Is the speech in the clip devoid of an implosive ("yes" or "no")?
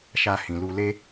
yes